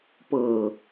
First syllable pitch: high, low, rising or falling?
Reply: low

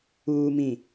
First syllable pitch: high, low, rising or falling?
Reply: low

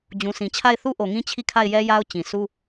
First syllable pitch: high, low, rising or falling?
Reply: low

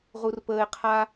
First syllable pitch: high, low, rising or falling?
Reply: high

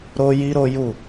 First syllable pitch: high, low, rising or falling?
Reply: high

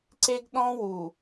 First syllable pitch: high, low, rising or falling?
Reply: high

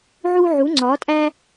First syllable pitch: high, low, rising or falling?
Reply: high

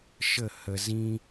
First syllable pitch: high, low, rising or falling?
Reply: falling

